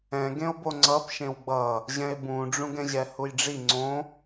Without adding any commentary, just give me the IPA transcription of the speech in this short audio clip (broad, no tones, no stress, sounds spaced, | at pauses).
ɛ̃ ɡ ẽ o̯ b o ŋ͡ǀ ʌ p ʃ ẽ w ɡ͡b ʌ | ʑ ɛ̃ e̯ b ũ ɖ͡ʐ ũ ɡ ɛ̃ ʑ ɛ h u j ɖ͡ʐ i ŋ͡ǀ õ